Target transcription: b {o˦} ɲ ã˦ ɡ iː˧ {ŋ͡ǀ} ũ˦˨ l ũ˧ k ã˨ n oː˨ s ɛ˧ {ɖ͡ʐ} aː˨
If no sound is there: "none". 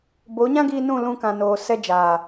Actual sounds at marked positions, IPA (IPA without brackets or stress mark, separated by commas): o˨˦, n, d͡ʒ